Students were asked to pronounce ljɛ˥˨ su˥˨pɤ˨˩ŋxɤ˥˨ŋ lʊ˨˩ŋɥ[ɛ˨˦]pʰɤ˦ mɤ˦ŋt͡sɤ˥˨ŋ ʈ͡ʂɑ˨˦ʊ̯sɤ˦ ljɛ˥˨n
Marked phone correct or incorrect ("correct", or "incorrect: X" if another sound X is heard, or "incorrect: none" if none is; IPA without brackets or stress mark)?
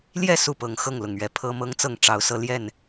correct